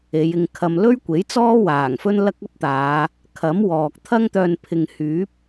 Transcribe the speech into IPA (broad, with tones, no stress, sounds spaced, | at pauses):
e˨˧ j ɪ˧ ŋ kʰ ɐ˧ m l ɵ˥ ɥ kʷ e˨˥ j t͡s ɔː˥ w aː˨˩ ŋ f ɵ˥ n l ɐ˥ k̚ ɐ˥ p̚ t̪ aː˨˧ | kʰ ɐ˨˥ m w ɔː˨ k̚ t̪ʰ ɐ˥ ŋ t̪ œː˧ n pʰ ɪ˧ ŋ h yː˨˥ p̚